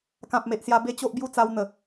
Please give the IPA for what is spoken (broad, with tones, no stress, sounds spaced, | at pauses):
k ã˨ p̚ m e˨ ʔ s j a˧ b e˦ t͡ɕ o˦ ʔ b j u˥˧ t͡s a˧ w n̪ ə˨˩